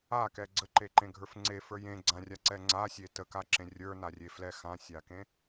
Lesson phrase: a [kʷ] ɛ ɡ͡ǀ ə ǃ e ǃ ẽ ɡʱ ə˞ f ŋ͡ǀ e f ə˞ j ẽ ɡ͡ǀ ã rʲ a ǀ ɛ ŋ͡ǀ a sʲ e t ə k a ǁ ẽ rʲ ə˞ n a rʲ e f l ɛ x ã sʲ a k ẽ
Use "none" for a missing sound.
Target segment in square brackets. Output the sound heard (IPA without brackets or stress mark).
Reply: k